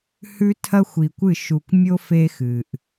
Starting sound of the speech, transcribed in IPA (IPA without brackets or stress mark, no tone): h